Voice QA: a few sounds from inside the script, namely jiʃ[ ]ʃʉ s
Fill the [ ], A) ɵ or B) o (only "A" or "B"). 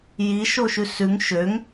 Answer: B